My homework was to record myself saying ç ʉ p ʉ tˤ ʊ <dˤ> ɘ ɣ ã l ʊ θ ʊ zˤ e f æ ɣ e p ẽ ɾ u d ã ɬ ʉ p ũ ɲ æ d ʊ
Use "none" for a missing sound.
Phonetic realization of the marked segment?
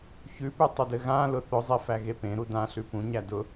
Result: d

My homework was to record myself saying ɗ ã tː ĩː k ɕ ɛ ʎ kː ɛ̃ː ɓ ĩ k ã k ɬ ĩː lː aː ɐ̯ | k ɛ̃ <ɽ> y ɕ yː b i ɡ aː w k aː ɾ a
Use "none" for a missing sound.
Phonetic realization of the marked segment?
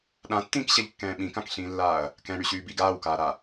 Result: ɽ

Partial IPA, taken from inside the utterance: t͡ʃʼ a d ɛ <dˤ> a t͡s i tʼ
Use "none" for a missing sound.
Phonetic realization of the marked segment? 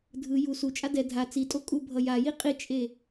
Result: dʱ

